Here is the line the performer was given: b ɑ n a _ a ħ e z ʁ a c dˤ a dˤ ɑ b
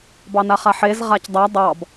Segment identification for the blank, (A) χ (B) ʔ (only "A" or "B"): A